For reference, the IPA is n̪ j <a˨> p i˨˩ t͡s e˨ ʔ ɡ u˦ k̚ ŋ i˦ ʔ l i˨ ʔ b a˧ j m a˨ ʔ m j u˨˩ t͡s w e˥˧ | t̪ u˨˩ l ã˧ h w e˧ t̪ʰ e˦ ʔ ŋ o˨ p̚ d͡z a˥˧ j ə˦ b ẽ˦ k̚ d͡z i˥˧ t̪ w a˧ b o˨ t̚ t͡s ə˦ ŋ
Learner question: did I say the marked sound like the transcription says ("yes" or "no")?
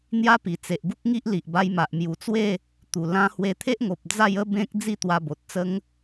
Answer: no